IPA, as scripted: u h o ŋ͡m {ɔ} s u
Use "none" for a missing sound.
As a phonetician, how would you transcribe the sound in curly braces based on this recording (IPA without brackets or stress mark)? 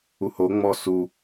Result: ɔ